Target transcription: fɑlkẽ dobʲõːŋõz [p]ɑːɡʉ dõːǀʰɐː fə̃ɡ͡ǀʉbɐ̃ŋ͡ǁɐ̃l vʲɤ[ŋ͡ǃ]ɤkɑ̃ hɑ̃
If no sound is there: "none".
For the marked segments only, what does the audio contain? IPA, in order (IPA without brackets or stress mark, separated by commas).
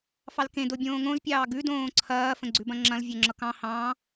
pʲ, ŋ͡ǁ